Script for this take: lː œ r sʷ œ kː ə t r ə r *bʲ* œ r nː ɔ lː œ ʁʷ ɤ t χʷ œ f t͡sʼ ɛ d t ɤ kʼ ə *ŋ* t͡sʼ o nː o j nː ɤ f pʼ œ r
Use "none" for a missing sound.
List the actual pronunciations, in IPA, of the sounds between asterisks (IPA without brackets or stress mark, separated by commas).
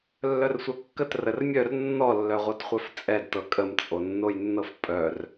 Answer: mʲ, m